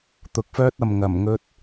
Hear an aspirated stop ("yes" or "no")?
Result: no